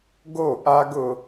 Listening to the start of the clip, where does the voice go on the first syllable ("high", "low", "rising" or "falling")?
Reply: falling